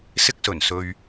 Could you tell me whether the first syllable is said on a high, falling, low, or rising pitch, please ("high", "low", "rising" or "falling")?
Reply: high